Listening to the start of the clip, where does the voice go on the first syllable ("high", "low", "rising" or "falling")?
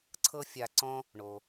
high